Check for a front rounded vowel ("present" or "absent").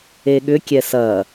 present